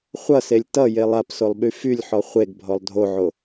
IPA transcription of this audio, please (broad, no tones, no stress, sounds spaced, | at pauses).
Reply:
χʷ ʌ s e lʲ t ʌ j e lˠ a p s o lˠ ɓ y f y lʲ ħ ɔ χʷ e ɡ bʱ ɔ lˠ dʱ o ʕ o